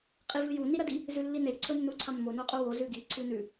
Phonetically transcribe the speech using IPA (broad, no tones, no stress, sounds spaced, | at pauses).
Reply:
qʼ i v ɨ j u n i ɾ ɐ d i | z ʉ lː i n e ǀʰ ɵ nː u ǀʰ a mː o n o qʼ u w o z ʉ ɡ i ǀʰ ʉ n ʉ